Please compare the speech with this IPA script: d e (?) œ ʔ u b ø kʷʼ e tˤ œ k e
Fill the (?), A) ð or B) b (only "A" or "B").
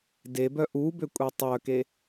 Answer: B